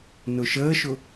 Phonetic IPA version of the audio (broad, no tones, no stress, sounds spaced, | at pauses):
n ʊ ʃ əː ʃ ʊ